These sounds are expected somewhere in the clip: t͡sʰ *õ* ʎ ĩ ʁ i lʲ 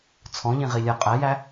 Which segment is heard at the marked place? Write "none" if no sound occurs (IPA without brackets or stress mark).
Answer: ɔ̃